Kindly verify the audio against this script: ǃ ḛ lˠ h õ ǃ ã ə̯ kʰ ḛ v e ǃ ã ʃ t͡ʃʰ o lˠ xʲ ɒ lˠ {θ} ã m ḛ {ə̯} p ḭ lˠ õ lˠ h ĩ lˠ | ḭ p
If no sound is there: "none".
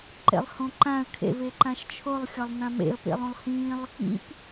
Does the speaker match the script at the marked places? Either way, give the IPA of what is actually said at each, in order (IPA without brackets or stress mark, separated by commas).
n̪, ə̯